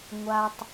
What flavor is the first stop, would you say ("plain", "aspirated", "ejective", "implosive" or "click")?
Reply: plain